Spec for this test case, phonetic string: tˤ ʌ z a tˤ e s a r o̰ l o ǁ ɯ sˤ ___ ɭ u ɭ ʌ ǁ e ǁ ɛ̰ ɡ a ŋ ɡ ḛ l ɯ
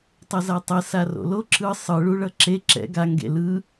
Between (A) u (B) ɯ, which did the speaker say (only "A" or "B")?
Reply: B